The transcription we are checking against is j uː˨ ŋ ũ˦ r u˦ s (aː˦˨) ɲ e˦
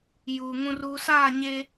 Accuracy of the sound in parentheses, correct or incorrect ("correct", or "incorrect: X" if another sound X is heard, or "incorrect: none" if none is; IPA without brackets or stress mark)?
correct